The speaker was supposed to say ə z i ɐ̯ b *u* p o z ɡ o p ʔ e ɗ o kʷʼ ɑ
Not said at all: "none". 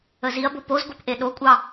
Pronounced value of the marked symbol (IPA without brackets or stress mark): o